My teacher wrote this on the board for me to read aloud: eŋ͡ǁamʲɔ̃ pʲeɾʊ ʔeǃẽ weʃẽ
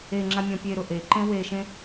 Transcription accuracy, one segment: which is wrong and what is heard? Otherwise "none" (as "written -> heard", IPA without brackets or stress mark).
none